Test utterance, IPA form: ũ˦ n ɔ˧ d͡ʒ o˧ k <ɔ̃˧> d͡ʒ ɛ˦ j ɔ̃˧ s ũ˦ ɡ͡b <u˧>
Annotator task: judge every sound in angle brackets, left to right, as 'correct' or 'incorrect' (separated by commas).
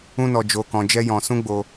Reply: correct, incorrect